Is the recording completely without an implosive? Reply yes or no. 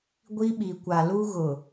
no